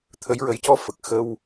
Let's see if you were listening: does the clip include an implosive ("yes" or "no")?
no